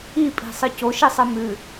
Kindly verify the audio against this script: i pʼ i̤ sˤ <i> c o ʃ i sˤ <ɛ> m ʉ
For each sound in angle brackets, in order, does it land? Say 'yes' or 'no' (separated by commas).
no, no